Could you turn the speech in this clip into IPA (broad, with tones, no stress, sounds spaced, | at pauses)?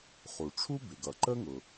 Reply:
χ u˩ ʈ͡ʂʰ u˥ b ɪ˩ ɡ ʌ˩ ǃ ə˥ ŋ ʊ˩